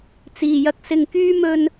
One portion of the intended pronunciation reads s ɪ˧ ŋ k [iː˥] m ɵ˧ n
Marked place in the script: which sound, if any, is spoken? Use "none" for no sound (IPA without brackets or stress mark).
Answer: yː˥